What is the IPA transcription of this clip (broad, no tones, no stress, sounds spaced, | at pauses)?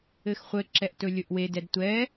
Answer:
ɘ x χʷ ɘ ǁ ɛ ʔ t ɵ lʲ ɵ ʔ w e d ɛ d tʷ ɛ